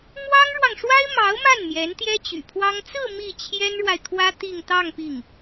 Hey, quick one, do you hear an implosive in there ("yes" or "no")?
no